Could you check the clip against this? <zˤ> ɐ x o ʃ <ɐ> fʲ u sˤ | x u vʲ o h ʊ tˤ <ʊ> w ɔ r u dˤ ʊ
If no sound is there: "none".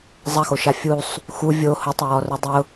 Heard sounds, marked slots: zˤ, a, ʊ

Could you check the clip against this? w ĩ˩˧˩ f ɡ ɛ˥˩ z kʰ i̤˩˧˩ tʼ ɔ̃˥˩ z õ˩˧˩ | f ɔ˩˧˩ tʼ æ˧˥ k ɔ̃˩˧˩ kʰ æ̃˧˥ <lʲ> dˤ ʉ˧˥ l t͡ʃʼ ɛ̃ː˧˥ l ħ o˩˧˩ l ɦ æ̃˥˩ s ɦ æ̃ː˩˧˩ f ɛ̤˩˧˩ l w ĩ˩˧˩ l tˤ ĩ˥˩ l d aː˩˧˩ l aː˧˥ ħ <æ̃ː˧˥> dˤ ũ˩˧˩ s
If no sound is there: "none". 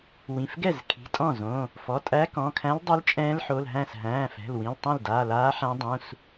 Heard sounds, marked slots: l, æ̃˧˥

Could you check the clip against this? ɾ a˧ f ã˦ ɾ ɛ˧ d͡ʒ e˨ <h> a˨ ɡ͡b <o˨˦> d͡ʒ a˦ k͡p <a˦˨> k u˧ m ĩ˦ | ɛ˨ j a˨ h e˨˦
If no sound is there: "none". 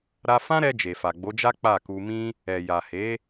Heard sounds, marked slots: f, o˨˦, a˦˨

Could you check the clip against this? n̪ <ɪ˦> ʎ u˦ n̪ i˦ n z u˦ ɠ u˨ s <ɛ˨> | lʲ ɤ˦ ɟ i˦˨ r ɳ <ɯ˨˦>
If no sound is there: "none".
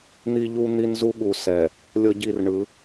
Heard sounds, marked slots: i˦, ɛ˨, ɯ˨˦

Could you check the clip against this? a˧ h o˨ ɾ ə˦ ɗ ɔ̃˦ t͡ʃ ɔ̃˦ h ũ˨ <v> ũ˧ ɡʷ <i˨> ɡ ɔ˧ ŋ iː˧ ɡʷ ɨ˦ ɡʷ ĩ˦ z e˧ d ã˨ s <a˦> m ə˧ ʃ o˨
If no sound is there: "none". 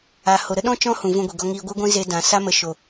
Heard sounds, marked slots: v, i˨, a˦

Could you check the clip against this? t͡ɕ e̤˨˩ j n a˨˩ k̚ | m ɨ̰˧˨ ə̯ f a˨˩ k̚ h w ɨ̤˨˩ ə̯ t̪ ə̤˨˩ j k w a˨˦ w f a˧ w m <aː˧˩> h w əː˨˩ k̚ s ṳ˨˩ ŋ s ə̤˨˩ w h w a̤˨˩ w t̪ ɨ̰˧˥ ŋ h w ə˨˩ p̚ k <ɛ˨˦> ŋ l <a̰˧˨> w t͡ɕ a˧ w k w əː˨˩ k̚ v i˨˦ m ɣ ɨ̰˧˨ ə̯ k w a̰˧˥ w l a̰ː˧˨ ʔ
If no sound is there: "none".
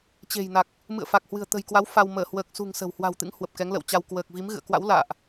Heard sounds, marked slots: əː˧˩, ɛ˨˦, ə̰˧˨

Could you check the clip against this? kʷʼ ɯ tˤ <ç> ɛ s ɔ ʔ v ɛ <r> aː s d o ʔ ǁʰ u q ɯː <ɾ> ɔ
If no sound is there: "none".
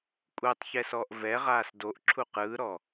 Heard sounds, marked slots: ç, ʁ, ɾ

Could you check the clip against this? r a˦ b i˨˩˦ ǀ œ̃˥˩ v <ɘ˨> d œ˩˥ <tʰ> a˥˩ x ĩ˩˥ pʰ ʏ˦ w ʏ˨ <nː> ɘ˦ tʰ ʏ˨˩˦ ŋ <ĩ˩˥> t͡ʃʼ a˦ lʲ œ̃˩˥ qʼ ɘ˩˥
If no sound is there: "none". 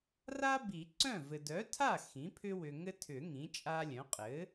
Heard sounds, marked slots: ɘ˨, tʰ, ŋ, ĩ˩˥

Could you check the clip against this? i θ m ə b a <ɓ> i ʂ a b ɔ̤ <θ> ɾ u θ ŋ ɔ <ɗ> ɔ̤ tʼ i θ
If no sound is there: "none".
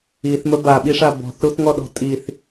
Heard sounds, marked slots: ɓ, θ, ɗ

